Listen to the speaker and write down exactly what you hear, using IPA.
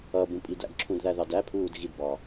ʌ b ũ pʼ i d æ̰ d ǁʰ ũ d ð æ ð ɑ d æ pʰ uː d ɣ i d b ɑ

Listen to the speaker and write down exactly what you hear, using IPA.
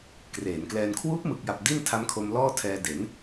k r eː˩˦ n k l ɛː˧ n kʰ w uː˦˥ p̚ m ɯ˨˩ k̚ j a˨˩ p̚ d i˥˩ n tʰ a˦˥ m kʰ o˧ m l ɔː˥˩ tʰ ɛː˧ d e˩˦ n

